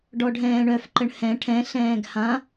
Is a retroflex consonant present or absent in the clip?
present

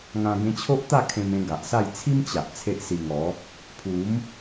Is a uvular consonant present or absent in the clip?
absent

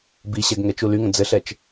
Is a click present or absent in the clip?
absent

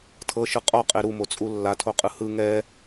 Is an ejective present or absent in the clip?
present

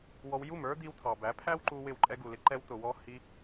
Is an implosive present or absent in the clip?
absent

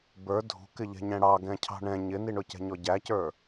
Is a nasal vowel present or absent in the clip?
present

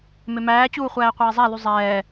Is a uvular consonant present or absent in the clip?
present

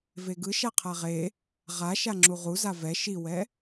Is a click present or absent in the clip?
present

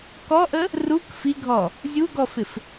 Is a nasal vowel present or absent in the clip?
absent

